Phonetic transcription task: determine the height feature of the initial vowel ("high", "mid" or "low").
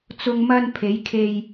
high